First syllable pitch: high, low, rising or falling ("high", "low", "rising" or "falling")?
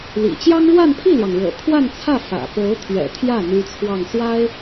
low